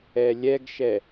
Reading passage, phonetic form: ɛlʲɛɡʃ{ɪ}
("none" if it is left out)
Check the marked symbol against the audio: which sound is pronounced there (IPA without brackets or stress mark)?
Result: ɛ